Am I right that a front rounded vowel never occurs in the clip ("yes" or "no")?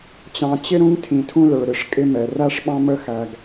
yes